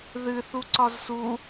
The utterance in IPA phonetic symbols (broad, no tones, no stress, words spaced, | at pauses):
ðɨ θuǀɒzsu